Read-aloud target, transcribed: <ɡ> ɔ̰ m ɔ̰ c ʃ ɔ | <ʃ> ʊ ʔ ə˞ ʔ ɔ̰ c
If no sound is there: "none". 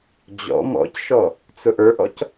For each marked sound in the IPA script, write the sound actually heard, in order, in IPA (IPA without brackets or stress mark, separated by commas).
d͡ʑ, t͡s